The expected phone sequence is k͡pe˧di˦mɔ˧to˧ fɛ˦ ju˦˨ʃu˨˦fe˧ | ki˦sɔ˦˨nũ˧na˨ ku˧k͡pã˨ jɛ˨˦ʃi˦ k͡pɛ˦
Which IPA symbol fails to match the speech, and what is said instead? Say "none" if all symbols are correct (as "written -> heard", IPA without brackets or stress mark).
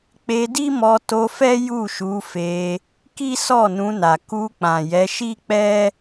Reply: none